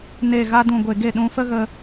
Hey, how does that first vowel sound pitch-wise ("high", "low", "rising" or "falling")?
low